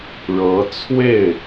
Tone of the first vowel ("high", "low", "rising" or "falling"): rising